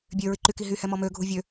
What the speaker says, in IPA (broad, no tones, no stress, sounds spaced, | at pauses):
bʲ ø ɹ i ǃ y k i ɦ y h ɛ m ɔ m ø ɡʱ u vʲ ø